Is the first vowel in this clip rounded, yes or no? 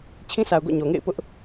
no